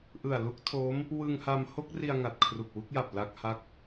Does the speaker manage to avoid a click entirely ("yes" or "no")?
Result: yes